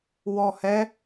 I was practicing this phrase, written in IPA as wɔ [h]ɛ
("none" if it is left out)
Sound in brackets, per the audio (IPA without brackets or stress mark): h